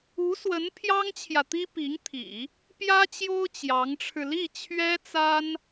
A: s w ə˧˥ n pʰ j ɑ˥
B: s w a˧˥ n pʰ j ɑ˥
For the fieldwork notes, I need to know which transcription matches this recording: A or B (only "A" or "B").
A